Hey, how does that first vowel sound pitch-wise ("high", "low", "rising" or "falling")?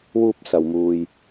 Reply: high